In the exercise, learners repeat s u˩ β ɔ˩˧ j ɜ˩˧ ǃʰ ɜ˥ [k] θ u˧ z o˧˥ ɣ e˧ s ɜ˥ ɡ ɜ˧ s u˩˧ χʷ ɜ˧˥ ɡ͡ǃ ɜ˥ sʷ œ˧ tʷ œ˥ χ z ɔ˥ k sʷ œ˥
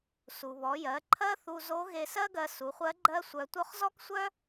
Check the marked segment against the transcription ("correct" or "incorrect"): incorrect